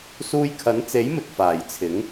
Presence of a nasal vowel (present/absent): absent